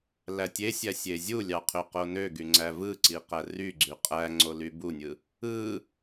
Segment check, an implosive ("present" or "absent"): absent